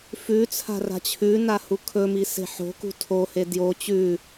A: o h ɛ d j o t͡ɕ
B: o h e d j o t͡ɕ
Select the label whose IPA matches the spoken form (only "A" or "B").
B